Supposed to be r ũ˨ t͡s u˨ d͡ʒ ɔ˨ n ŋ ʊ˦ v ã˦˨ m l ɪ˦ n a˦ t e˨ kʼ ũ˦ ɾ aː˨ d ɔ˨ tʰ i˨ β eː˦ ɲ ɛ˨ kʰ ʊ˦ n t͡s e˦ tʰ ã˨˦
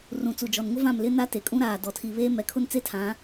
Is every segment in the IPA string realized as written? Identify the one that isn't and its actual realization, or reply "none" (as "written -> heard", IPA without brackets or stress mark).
ɲ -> m